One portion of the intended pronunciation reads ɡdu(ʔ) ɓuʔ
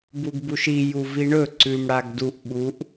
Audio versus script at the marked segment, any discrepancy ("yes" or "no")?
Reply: no